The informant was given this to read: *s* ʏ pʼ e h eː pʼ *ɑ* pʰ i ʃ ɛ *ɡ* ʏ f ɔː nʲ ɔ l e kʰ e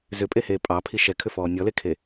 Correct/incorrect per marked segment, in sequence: incorrect: z, correct, incorrect: kʰ

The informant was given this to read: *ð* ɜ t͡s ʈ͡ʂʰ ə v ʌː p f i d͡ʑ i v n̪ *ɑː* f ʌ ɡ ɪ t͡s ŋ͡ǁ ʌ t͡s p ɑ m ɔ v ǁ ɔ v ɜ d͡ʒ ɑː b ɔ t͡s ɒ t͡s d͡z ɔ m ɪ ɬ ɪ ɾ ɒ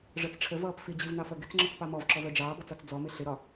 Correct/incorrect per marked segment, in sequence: incorrect: ʐ, incorrect: ɑ

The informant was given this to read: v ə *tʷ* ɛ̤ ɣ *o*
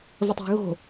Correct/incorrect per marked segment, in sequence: incorrect: tˤ, incorrect: o̤

